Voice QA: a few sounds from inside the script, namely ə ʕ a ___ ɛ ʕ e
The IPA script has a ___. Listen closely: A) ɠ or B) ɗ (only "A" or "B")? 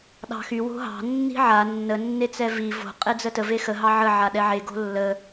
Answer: B